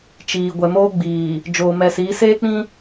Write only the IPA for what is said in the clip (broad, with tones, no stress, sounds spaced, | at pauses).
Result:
t͡ʃ iː˨ ɡʷ ɛ˨ m oː˦ ɡ͡b iː˨ | d͡ʒ oː˨ m ɛ˨ s iː˨˦ s eː˦ k͡p ĩ˦